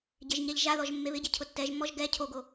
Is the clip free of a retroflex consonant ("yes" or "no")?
yes